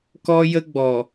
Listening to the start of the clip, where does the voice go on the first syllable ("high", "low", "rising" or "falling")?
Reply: high